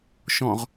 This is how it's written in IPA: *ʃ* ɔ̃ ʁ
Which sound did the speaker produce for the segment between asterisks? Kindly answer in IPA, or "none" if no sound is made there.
ʃ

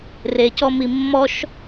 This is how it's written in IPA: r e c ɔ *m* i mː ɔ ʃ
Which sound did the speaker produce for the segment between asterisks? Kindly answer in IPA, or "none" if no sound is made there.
m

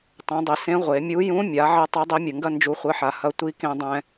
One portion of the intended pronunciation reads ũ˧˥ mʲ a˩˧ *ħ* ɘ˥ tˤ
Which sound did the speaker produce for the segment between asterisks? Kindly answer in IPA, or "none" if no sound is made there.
ʕ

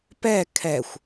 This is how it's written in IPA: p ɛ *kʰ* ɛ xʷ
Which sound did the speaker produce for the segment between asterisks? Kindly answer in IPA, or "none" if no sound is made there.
kʰ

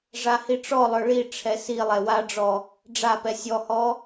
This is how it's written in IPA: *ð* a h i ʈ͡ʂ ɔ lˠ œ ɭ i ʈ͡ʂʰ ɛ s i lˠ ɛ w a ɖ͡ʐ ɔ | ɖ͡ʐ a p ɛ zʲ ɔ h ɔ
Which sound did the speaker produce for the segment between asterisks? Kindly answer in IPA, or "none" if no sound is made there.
ʐ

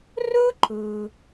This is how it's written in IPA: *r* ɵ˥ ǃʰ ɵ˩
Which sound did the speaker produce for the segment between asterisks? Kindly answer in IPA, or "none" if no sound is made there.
r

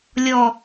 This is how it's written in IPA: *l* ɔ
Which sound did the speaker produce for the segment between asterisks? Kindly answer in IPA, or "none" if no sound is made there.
lʲ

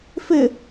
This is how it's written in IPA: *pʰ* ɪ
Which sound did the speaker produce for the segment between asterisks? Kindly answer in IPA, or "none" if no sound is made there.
f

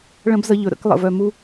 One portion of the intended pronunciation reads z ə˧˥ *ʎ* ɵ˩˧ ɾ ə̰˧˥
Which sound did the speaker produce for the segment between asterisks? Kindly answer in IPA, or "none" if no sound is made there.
ʎ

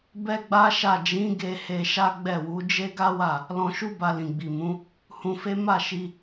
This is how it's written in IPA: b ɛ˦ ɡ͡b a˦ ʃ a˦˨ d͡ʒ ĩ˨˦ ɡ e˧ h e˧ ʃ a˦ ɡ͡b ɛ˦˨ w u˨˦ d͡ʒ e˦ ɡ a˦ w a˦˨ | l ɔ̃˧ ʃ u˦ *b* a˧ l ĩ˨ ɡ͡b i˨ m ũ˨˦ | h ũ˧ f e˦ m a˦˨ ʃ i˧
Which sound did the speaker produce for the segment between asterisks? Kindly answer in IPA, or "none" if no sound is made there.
b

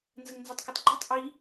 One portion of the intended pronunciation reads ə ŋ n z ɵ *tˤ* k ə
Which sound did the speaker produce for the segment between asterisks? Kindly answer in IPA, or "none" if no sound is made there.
tˤ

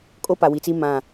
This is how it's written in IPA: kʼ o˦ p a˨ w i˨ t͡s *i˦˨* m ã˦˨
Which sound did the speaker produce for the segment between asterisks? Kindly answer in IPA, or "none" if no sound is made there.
i˦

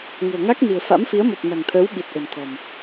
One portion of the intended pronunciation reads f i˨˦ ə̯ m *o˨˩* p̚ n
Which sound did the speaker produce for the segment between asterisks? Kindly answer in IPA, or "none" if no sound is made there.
o˨˩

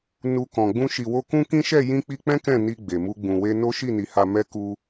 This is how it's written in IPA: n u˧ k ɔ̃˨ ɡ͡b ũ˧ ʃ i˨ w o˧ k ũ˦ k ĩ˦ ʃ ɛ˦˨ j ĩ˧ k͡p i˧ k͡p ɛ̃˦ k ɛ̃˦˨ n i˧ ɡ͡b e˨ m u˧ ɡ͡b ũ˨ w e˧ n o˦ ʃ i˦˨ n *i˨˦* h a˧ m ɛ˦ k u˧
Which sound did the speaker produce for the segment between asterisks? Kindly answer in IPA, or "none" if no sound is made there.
i˨˦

